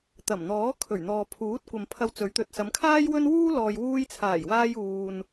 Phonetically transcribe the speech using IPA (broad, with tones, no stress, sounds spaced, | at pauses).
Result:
t̪ ɐ˨˩ m n̪ ɔː˨˥ kʰ ɵ˨˩ ɥ n̪ ɔː˨ pʰ uː˨˥ t̚ kʷ ɐ˨ m pʰ ɐ˧ w t͡s ɵ˨˥ ɥ t̪ ɵ˨ t̚ s ɐ˨˧ m kʰ aː˥ j w ɵ˥ n w uː˥ l ɔː˨ j w uː˧ j t͡sʰ aː˨˩ j w aː˧ j uː˧ n